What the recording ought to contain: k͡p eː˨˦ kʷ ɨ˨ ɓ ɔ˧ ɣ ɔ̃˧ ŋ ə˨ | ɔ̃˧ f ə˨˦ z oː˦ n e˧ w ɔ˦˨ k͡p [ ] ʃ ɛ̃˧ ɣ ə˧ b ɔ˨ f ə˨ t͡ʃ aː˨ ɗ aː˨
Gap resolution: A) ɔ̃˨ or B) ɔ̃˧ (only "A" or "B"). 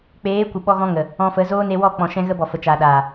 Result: A